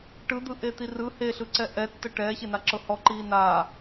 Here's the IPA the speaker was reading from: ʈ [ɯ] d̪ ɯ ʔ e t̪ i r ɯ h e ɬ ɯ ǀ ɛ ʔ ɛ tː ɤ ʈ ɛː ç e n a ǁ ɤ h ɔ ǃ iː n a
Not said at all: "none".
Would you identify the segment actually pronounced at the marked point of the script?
ɯ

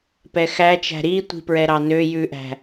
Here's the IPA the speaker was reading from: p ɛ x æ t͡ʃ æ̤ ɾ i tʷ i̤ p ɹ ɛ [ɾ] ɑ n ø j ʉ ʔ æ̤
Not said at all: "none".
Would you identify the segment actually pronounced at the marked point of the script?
ɾ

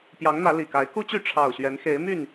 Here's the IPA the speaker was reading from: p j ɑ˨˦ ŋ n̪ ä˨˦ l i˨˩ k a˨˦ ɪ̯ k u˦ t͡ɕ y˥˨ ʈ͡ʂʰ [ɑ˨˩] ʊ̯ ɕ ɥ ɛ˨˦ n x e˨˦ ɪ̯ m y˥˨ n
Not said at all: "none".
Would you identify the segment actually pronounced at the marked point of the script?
ɑ˨˩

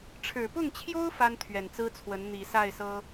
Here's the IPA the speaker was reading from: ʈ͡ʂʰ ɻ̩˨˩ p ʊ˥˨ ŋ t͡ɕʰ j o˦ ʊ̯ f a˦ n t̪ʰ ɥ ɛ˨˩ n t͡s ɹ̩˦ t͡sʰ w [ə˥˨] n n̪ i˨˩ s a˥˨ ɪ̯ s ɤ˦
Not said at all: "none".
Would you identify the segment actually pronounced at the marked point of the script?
ə˨˦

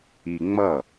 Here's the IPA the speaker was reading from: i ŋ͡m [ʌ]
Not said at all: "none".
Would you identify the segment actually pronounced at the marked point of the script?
ʌ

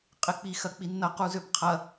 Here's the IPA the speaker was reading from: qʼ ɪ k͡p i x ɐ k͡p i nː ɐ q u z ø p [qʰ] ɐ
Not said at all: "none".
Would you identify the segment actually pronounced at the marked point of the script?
qʰ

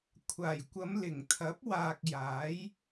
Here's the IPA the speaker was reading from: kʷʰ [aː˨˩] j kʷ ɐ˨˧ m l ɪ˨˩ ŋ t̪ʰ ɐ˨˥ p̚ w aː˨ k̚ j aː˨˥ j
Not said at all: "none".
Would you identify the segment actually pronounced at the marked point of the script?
aː˨˩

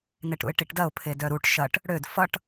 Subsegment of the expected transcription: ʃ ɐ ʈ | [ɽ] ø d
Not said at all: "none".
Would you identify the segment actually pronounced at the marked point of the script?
ɽ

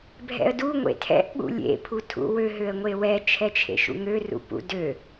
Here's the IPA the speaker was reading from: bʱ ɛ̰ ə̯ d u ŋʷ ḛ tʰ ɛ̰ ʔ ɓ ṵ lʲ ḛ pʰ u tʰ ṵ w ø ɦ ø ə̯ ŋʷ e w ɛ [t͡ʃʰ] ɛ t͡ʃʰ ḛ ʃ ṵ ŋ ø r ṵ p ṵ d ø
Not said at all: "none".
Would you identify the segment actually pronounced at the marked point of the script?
t͡ʃʰ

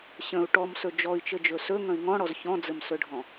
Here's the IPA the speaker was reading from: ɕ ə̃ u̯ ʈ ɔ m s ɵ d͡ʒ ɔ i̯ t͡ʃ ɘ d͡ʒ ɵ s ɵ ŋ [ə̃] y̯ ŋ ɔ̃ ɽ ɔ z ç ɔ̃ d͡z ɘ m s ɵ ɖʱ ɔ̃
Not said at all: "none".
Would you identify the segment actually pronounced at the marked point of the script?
ə̃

